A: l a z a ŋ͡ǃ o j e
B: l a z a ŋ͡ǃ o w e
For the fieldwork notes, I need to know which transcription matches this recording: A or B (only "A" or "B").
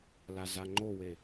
B